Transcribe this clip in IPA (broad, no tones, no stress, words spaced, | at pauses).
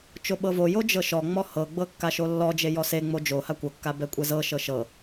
t͡ʃoɓɤvojo d͡ʒɤʃɔŋ͡mɔ hɤɡ͡bɤ kːaʃolːɔd͡ʒe jɔseŋ͡mo d͡ʒoha kʷɤkːa bɛkʷʼɛzɤʃɤ ʃɤ